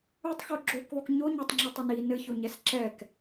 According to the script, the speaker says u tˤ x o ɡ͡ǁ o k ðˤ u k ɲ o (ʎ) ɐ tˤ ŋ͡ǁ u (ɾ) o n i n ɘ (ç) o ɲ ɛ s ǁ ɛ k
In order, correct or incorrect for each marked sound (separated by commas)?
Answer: incorrect, incorrect, correct